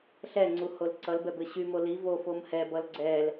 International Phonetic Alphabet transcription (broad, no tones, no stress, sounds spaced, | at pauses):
ɬ ɛ ŋ͡ǀ u h o l ǀ ʌ l b ɛ b ɘ ɕ y m o l i v o f o m h ɛ b ʌ l ɡ͡ǀ ɛ l